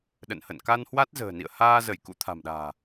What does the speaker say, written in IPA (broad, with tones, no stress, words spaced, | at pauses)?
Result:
ɗə̰˧˨nhə̰˧˨n ka˧n hwa˦˥t̚zə̤ː˨˩nḭ˧˨ə̯ haː˧zə˧˩j kṵ˧˥t̪ʰa̤˨˩mɗa̤ː˨˩